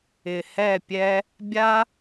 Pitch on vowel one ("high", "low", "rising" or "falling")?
low